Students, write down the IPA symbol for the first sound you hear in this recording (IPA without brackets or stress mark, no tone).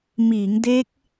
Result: m